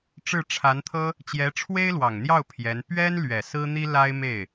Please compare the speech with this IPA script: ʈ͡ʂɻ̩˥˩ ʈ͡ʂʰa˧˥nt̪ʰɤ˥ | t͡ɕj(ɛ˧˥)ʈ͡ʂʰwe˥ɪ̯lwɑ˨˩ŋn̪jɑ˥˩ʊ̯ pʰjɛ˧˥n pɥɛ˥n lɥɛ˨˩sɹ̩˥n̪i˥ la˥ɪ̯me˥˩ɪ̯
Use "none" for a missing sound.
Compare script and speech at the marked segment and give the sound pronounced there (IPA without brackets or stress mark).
ɛ˧˥